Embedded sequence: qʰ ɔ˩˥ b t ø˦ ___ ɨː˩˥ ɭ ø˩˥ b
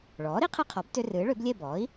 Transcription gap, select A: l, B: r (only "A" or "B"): B